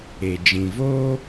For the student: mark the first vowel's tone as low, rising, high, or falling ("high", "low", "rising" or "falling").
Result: low